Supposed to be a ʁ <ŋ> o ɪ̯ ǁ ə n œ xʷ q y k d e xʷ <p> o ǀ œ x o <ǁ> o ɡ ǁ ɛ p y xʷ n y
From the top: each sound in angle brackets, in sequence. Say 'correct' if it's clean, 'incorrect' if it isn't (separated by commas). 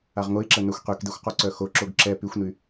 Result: correct, incorrect, correct